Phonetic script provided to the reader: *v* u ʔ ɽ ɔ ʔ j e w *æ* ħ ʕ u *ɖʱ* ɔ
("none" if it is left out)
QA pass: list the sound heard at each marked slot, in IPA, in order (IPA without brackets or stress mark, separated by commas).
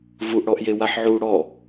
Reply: v, a, ɽ